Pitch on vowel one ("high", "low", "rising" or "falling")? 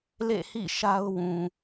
falling